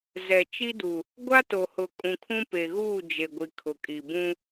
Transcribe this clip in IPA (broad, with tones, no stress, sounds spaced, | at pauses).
z ɛ˨ t͡ʃ i˦ d u˨ | ɡʷ a˦ t o˨ h ʊ˨ kʼ ũ˨ kʰ ũ˦ p e˨ ɣ uː˦˨ d͡ʒ e˨ ɡʷ i˨ kʰ ʊ˨ kʼ i˨ b ũ˦